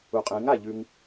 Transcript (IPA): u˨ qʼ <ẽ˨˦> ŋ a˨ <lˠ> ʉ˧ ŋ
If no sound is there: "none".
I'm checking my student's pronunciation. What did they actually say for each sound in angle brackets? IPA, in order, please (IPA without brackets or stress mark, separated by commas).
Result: ẽ˨˦, ʎ